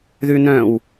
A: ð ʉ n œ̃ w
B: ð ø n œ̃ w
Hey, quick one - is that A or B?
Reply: A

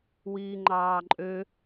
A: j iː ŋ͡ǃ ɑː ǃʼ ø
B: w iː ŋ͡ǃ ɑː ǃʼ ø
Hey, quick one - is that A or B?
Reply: B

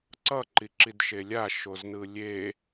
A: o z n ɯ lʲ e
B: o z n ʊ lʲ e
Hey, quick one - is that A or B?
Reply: A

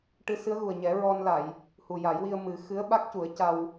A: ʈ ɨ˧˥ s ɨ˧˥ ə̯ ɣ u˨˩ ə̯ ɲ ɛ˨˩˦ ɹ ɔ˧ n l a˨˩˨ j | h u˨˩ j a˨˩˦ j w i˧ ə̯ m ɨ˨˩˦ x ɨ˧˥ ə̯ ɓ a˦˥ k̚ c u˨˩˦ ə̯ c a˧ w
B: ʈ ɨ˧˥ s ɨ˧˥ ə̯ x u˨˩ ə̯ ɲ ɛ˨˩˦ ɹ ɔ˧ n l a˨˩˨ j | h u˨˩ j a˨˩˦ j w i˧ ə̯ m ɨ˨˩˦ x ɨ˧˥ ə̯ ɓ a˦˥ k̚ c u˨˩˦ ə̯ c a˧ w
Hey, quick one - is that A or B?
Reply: A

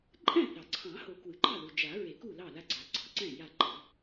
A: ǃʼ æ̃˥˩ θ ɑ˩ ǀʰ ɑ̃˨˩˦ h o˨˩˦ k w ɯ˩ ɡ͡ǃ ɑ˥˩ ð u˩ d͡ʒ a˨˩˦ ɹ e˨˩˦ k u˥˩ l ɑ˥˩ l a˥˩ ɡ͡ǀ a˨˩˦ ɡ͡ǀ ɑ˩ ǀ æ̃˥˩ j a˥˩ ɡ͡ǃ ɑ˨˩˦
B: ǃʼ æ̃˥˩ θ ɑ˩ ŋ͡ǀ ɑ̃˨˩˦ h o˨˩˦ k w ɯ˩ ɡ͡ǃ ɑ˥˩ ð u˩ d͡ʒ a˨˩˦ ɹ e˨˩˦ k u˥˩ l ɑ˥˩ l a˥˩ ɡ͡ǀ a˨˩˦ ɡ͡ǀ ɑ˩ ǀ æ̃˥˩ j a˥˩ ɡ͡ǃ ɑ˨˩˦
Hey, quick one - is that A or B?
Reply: A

